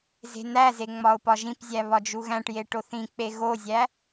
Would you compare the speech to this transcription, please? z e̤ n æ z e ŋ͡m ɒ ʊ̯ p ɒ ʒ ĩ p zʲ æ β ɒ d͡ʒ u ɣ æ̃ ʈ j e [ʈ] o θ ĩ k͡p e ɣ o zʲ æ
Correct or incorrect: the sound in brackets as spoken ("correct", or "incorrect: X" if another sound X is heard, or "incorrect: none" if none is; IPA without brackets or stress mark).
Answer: correct